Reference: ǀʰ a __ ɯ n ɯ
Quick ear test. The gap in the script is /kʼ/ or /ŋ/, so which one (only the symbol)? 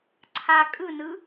kʼ